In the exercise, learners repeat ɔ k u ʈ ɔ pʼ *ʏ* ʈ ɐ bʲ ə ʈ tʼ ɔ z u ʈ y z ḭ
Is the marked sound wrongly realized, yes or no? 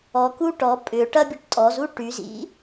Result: no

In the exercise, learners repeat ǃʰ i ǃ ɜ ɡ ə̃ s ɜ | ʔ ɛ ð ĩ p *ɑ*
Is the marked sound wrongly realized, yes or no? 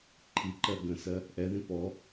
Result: yes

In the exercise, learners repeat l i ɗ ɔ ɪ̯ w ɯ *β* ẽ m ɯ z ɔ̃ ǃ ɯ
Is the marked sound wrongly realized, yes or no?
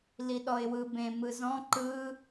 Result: yes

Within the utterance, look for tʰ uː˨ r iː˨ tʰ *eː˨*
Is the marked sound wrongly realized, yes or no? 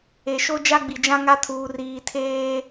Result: yes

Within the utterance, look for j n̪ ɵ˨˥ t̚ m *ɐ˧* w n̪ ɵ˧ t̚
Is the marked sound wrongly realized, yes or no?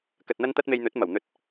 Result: yes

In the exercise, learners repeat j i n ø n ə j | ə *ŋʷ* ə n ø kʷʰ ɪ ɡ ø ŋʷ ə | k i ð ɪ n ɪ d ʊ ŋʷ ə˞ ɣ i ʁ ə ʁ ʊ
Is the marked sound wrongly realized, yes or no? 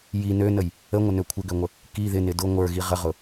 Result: no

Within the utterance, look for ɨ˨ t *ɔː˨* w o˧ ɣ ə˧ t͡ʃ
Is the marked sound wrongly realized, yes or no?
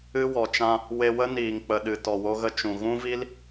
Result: yes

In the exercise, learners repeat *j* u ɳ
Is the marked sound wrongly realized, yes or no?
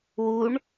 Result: yes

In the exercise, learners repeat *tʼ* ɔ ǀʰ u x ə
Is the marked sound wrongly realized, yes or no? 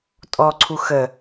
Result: no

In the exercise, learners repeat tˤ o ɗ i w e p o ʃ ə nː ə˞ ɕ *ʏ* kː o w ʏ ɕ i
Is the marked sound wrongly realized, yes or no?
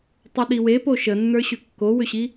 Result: no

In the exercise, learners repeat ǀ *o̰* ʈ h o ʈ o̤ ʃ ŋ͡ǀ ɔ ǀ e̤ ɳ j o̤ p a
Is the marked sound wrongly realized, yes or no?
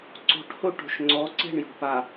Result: yes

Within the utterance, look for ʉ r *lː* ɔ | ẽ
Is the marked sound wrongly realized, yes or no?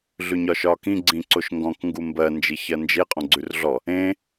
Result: yes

